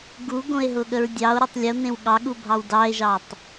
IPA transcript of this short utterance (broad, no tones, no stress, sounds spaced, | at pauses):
ɡ u ɡ õ e̯ ɦ ʊ ɠ ə ɹ dʲ ɑ o̯ ɾ o tˤ lʲ ə o̯ n ẽ w ɠ ɑ ɠ u bʱ ɑ w d ɑ e̯ ʒ ɑ tˤ